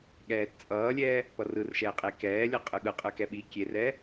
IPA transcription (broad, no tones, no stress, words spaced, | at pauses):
ɠɛːtt͡sʼʌːlʲɛː | pʌrɯrʃɛː qʼekɛːlʲʌqʼɯ ɠɯqʼɯkɛ ɓi kʲerɛː